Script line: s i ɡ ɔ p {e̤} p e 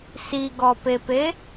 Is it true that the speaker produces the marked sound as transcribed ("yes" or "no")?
no